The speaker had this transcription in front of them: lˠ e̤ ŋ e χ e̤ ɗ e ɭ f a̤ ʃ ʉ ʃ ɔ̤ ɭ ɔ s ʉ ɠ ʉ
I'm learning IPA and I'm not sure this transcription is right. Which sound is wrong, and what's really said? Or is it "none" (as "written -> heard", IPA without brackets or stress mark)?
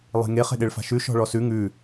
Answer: ɠ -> ŋ